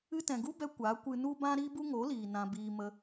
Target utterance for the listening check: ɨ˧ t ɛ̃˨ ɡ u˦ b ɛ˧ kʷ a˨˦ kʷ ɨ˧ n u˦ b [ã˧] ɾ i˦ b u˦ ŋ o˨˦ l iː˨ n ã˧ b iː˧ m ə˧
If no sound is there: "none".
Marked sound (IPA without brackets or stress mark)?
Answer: ã˦